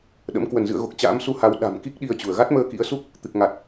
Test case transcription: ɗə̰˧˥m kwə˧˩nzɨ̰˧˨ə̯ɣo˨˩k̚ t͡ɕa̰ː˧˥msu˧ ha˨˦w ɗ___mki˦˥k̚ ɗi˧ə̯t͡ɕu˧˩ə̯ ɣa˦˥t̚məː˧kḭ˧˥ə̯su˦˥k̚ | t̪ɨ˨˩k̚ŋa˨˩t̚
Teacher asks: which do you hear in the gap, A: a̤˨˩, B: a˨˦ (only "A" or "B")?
A